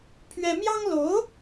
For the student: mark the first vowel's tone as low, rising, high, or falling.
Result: high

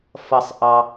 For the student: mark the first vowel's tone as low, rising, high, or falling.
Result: low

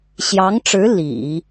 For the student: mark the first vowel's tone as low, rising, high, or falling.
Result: rising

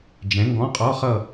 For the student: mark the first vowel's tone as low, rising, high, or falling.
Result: rising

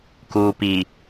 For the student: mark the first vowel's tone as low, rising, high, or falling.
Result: low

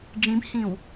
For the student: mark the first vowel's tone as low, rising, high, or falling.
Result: rising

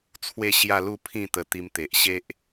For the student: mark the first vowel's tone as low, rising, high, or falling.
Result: falling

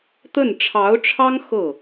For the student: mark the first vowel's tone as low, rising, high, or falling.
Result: falling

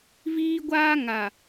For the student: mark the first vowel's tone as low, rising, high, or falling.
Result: high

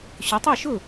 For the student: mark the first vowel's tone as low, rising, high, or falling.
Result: rising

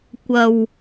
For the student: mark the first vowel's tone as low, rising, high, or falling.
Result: low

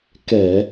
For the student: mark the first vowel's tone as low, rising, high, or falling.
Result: low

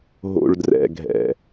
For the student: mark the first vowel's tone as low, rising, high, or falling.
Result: low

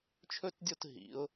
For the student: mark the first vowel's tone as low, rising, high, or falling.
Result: high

